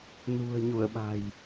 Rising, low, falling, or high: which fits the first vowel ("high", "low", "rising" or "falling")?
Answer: low